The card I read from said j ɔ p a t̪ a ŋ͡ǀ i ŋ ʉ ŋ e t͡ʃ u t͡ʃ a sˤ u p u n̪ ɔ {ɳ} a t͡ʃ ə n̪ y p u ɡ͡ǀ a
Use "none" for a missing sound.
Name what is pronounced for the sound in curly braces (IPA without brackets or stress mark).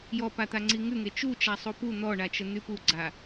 ɳ